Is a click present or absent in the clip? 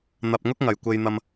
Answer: absent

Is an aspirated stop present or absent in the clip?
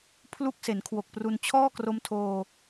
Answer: present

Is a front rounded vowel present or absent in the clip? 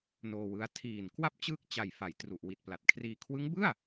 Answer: absent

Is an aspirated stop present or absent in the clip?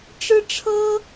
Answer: present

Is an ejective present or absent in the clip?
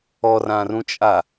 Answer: present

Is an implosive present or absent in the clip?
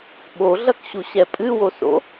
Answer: present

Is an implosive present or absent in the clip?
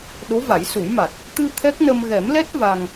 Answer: present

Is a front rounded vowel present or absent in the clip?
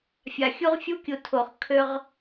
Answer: present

